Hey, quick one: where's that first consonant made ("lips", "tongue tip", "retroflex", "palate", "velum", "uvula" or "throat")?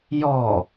palate